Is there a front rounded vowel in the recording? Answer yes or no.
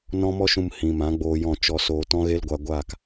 no